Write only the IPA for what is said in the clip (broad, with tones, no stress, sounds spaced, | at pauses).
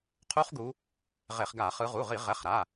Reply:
qʰ u˦˥ χ ɡ u˨˦ | ʁ e˧˩˧ χ ɡ a˧˩˧ χ ɯ˨˦ ʁ u˩˧˩ ʁ i˧˩˧ ʁ ɛ˩˧˩ χ ɾ a˩˧˩